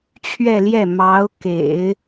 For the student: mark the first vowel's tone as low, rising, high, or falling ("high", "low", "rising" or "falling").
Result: falling